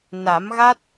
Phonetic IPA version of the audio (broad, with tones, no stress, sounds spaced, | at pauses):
n a˨˩˦ m ɣ a˦˥ t̚